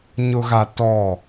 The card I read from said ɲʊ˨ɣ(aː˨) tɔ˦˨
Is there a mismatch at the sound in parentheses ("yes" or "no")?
yes